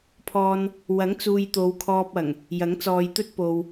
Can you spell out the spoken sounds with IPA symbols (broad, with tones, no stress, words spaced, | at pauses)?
pʰɔː˨n | wɐ˨˥ŋt͡suː˨j t̪o˨˧wkʰɔː˧p̚ɐ˨˩ŋ | jɐ˨˥ŋt͡sɔː˨jt̪ɵ˥t̚ po˨w